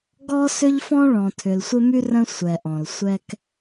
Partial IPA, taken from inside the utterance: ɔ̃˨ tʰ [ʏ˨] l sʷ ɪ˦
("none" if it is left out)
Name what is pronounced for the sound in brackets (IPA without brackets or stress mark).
ʏ˨